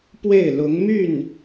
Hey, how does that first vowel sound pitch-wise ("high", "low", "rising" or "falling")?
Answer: falling